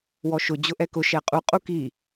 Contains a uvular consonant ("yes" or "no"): yes